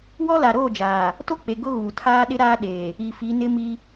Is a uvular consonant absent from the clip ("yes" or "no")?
yes